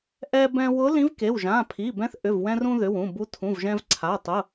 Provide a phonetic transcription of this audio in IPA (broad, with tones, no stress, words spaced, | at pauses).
ʔɛ˧bɛ̃˧ wʊ˧˥lĩ˧˥vke˩˧˩w ʒã˩˧˩pʰi˩˧˩bɛ̃˧˥θ ʔʏ˩˧˩vwɛ̃˧rũ˧ ðʏ˩˧˩wũ˩˧˩bu˧˥ tʰũ˩˧˩vʒɛ̃˧vǀʰa˩˧˩ tˤʊ˩˧˩